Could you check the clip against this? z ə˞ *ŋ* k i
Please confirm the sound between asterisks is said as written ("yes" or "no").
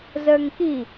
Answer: yes